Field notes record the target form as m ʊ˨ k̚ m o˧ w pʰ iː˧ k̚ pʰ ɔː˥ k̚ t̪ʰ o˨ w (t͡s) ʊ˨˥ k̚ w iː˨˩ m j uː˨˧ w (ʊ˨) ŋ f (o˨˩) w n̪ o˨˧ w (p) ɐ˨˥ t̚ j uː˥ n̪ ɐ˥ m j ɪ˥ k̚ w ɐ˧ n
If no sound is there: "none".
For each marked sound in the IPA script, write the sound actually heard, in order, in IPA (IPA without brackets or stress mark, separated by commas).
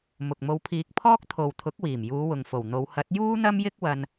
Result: t̪ʰ, ʊ˨, o˨˩, h